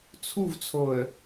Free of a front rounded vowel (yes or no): yes